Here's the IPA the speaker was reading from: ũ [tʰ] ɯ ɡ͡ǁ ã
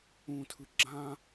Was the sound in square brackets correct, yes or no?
yes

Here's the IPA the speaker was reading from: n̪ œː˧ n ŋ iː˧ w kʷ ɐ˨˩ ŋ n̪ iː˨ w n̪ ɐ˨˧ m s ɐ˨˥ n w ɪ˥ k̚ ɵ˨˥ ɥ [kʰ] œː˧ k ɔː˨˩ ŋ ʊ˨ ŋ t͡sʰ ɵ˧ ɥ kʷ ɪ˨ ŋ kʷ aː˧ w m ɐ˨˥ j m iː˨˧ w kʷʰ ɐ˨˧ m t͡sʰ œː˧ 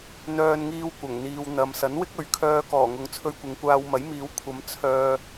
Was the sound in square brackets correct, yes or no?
yes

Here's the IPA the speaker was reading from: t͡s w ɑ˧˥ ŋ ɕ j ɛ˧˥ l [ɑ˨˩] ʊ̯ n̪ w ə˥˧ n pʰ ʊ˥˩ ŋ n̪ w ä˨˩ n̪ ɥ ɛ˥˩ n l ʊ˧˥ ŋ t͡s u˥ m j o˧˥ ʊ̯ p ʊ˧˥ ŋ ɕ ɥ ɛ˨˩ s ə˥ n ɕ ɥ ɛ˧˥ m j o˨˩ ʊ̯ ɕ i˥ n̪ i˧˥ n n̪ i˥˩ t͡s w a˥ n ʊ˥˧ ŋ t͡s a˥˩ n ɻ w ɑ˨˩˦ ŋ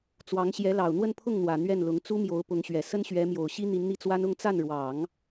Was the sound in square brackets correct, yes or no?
yes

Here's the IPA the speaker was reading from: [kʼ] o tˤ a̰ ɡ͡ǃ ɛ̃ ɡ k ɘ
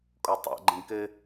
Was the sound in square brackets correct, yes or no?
yes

